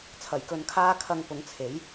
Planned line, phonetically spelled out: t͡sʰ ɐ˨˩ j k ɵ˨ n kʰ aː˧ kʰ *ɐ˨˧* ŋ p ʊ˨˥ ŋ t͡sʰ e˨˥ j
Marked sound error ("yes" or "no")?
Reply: no